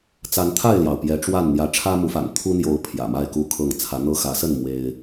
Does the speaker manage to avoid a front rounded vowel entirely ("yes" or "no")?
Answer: yes